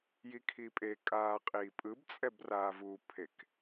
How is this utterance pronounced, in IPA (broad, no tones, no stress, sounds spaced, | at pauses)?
j i kʰ i pʼ e kʼ aː qʼ iː pʼ ɯ b t͡sʼ ɛ b r aː v u pʰ e k